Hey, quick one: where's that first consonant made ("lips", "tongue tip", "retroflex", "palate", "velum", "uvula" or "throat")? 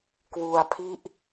velum